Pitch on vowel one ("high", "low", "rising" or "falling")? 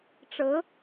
rising